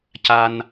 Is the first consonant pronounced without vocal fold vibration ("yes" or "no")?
yes